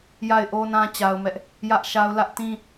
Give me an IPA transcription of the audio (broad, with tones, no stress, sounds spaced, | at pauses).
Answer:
j a˦˨ ɪ̯ ʔ o˦ n ã˦ t͡ɕ a˦ ʊ̯ m ɛ˦ ʔ | j ä˦ ʔ ʃ a˦ ʊ̯ l ä˦ ʔ t ĩ˦